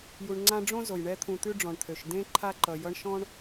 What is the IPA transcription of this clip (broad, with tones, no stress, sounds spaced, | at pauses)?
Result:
j u˨ ɳ ŋ͡ǀ ã˦ ɖ͡ʐ õ˥ z o˩ j ɳ ɛ˥ t̪ʰ ũ˨ t̪ ʉ˦ ɖ͡ʐ ɔ̃˩ ɳ t̪ʰ ø˩ ʃ d ẽ˦ ǃʰ a˦ ǃ ʌ˨ j ʌ˦ ɳ ʃ ɔ̃˥ ɳ